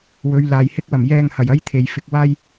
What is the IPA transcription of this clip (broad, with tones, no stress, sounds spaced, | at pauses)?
w ɵ˨˧ ɥ l aː˨ j h ɪ˥ k̚ w ɐ˨˩ m j ɛː˧ ŋ h ɐ˨˩ j ɐ˥ j t̪ʰ e˨ j f ɪ˧ k̚ w aː˥ j